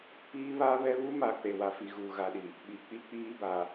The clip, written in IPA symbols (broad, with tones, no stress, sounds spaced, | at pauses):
p iː˦ β a˦ β ɛ˦ β u˦ m a˨ k͡p e˨ w a˨ f i˨ ɣ uː˨ ɣ a˨ ɗ i˨ | ɓ i˨ k͡p i˦ k͡p iː˦ b a˨